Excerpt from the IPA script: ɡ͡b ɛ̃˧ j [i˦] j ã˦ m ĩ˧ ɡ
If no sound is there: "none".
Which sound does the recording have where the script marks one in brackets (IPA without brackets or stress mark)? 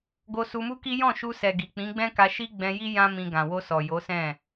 i˦